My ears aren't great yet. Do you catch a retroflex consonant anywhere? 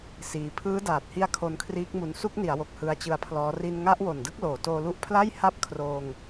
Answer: no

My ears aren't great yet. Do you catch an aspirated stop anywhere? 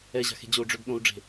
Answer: no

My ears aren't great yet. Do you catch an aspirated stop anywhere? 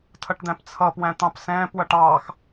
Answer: yes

